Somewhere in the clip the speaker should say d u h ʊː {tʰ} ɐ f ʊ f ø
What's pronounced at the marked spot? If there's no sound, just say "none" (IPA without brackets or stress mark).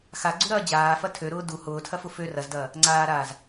tʰ